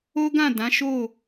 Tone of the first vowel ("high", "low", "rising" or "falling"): high